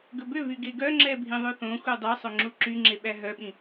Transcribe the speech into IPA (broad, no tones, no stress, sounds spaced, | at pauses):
ɡ ɵ b ø v y ɡ e ɡ œ ŋ͡ǁ ɛ bʱ ĩ ðˤ ʉ θ õ xʷ ɛ dˤ œ sˤ ɵ ŋ͡ǁ u ǁ y ŋ͡ǁ e ɓ æ ɦ œ ɓ ĩ